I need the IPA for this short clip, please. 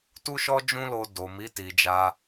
tu˦ ʃɔ˦d͡ʒũ˦lo˧ do˨mi˨˦ ti˧d͡ʒa˦

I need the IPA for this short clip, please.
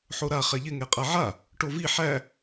ħoɾa χɛʎɪ ŋɛqʼaʕa | ʈovi ħæ

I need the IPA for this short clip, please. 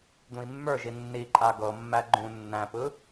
d̪ũi̯mːə˞ʒi nːiǃʼa ɡɤmːæ ɡ͡ǃũ nːæ̃pɯ

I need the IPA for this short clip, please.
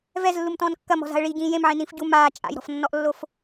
vɛzlːumtɔ̃ːn kːɐmɔ̤za̤ə̯ ɭiɟĩː jẽmʕĩnĩːf ɟu maː t͡ʃʼa̰jɾɔ̤fnːɔʔlːof

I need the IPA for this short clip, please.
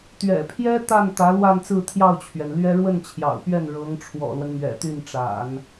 t̪ɥɛ̰˨˩pʰjɛ˥ t̪a˥˩n t̪ä˧˥lwa˥˧nt͡sɹ̩˥˧ t̪ʰjɑ˥˩ʊ̯t͡ɕʰɥɛ˩nlɥɛ˥ ɻwə˥˩nt͡ɕʰjɑ̰˨˩ʊ̯pɥɛ˥˩n ɻɤ˧˥ŋʈ͡ʂʰwɔ̰˨˩lwə˦n mɥɛ̰˨˩t̪y˥˩nʈ͡ʂa̰˨˩˦n

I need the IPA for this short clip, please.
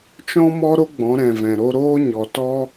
t͡ʃɔ̃˦mɔ˦ɾo˦ ɡ͡bɔ̃˨˦ɾɛ̃˨vɛ̃˨ ɾo˧ɾoː˦ ɲɔ˨tɔ˦

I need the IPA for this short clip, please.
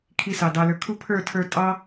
kʰi˧sɑ˨ dɑ˨lə˞˨kʰu˦ pʰə˞˦˨tʰə˞˧ tʼɑ˦

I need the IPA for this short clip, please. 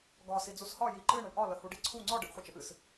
ɡɒ sid͡zushɒ jiǃɨɳ əɳʔɒ ləhuɖiǀʰu ŋ͡ǀɒ ɖɨʔχʷɨt͡ʃəʔɨs

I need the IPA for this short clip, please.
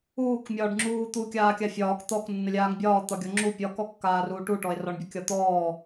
uːkmʲɒːɖ ŋ͡ǁuːt̪u kʲaːkʲafʲɒːk t̪ɔk nːəlʲaːŋbʲɒː t̪ɒɡʲɔŋ͡ǁu pʲɒkɔ kːaːruːʈuʈɔe̯ rɒɳbʲəkʲɒt̪ɔː

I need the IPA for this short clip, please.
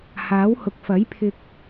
haː˨˥whʊ˨˥k̚ fɐ˨˥jpʰɪ˧k̚

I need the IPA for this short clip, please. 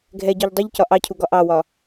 ɡʱɛɟɔʎ dˤuʎcɒ ʔɑcʰuɡɒ ʔɑwɒ

